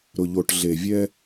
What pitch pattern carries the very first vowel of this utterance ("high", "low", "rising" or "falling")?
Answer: low